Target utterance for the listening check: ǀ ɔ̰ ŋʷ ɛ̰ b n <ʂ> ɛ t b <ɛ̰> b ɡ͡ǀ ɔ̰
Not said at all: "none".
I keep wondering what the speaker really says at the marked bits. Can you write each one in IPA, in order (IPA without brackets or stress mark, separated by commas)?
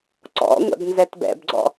z, ɛ̰